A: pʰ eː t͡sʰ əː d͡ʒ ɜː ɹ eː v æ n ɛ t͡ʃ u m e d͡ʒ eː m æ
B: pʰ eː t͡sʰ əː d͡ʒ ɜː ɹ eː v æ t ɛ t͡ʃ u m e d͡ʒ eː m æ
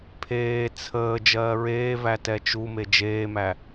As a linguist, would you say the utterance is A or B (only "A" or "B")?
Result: B